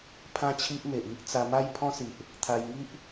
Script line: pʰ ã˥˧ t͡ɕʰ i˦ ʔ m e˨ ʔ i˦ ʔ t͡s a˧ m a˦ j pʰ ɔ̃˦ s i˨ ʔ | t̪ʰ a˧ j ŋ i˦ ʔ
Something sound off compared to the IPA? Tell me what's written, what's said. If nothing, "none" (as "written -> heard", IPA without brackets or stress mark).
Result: none